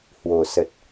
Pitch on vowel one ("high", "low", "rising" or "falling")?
low